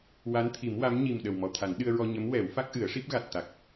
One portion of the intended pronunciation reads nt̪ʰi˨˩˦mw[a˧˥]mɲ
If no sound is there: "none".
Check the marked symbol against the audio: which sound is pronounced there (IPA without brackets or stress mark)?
a˧˥